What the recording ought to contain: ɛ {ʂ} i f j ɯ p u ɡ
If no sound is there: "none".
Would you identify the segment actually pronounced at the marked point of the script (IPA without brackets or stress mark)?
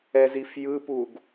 z